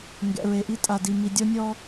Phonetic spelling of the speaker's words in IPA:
ŋɡɛ̰˨ɹe˨ʔi˦ tʼa˨di˨ mi˨dʲɔ˦nʲɔ˦

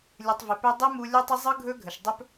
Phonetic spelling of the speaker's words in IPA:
lʲɯ˨tˤvɪ˨pʏ˧ dˤe˦mu˧ lʲɵ˦tˤɪ˦ zˤɯ˦ɡʱɵ˦ɡʱə˨ʃdˤɵ˦p

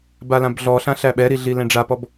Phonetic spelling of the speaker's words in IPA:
balãbɮɔɬã ɬæɓɛɾi ɮilɛ̃ɖ͡ʐapɔb

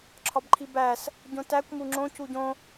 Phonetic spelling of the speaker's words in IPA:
ǁʰɒbǃʰibæs | ɟõtækʷ muŋ͡ǁõ cuɟõ

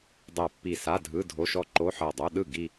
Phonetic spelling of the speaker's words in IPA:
dˤɛ˧˩pːi˧˩ sa˧˥˧dʱɯ˧˥˧ dʱo˧˥˧ʃɔ˥˧ ǃo˧˥˧ħɤ˧˩dˤo˧˥˧ ɗɯ˥˩ ɡi˥˧

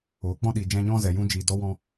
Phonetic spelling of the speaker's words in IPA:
oː˨k͡pɔ̃˦ ɗi˨ d͡ʒɛ̃˧ɲɔ̃˦zɛ˨ jũ˧d͡ʒi˨dɔ˧ wɔ̃˧

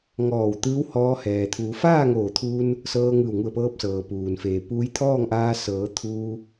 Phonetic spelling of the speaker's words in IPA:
ŋɔː˧˩w t̪ɯː˧˥whɔː˧ hɛː˩t̪ʰuː˩˧ faː˥˨ŋoː˧˩t̪ʰuː˧n | sɤː˧ŋɯː˧˩wŋu˧˩ə̯pɤː˧p̚ sɤː˩puː˩nfeː˩ puː˧˥jt̪ʰɔː˥˨ŋʔaː˧ sɤː˩˧ t̪ʰuː˧

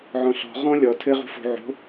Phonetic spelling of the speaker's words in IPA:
ʕɔ̃ɬɔ̤ ʁɔ̃ lʲɔ tʰɘ ʁṳfo̤ ʕo̤

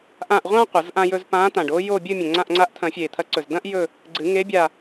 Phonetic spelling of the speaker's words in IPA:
ʔã˦˨ʔʁʷã˥ qʷɐ˨˩˦zʔã˥jɵ˥z pã˧˥t̪ã˨˩ɖo˥ jo˦˨bʲɨ˦˨ mʲɐ̃˨˩ŋ͡ǀã˦˨ʔŋ͡ǀa˧˥ʔt̪ʰɐ̃˨˩˦ fʲe˨˩t̪ʰɐ˧˥ǀɵ˨˩z dɐ̃˥ʔjɵ˦˨ | ɡ͡ǀɨ˨˩˦ŋe˧˥ bʲa˦˨

